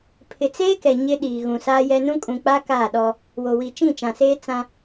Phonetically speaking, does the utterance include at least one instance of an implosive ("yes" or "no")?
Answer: yes